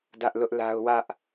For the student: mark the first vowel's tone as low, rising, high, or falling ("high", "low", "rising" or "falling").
high